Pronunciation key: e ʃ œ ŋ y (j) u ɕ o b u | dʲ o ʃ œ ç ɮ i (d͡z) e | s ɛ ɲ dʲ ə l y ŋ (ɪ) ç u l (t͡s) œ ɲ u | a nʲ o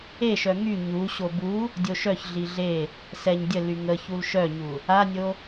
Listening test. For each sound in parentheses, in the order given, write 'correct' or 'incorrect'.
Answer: incorrect: ɲ, incorrect: ɮ, incorrect: ə, incorrect: ʃ

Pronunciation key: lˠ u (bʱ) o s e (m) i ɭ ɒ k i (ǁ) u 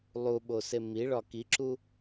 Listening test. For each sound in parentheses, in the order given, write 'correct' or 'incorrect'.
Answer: incorrect: ɓ, correct, correct

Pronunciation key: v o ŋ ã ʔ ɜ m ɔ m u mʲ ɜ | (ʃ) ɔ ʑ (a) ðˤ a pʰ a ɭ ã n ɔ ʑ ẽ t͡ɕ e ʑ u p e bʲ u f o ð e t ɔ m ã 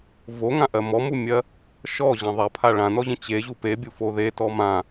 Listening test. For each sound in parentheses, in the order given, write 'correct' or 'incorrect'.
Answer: correct, incorrect: ã

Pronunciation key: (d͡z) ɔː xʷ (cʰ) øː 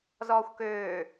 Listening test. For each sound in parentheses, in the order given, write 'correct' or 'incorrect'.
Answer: incorrect: z, incorrect: k

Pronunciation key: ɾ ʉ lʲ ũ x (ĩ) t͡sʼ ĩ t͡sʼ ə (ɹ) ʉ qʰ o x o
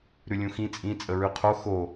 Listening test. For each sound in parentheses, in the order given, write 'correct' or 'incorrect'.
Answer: correct, correct

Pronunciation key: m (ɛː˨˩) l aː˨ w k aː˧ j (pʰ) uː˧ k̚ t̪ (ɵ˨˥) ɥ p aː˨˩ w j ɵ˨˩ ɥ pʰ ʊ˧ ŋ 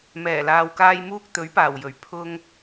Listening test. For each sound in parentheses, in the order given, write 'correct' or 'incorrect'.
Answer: correct, incorrect: m, correct

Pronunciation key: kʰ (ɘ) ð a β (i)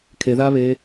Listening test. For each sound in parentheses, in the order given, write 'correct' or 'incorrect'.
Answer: incorrect: e, incorrect: e

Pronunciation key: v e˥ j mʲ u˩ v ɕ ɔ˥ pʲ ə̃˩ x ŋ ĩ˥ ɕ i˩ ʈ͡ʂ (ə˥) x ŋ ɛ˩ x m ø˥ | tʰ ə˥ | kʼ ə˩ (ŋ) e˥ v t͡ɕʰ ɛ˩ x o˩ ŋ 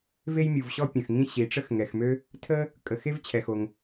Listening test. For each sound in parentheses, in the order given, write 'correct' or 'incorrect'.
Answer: correct, incorrect: x

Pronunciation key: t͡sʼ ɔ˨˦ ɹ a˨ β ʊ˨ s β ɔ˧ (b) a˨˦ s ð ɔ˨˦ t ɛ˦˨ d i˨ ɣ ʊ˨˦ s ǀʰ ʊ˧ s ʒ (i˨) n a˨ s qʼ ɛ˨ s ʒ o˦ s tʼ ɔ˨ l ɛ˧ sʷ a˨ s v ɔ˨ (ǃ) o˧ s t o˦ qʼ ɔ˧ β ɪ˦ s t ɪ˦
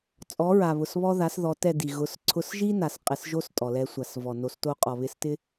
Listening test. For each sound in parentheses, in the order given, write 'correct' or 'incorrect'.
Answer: incorrect: ð, incorrect: i˦, incorrect: n

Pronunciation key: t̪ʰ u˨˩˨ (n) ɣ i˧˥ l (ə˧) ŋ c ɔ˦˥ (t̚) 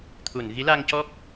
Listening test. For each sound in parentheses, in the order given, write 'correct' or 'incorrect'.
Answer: correct, incorrect: a˧, incorrect: k̚

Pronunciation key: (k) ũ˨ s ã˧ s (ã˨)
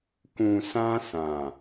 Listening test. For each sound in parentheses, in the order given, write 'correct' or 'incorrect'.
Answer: correct, correct

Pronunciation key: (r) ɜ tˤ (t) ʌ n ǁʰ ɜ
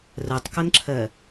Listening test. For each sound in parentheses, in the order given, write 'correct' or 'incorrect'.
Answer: correct, incorrect: k

